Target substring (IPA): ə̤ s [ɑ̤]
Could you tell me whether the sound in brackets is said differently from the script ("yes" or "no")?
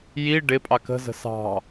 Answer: no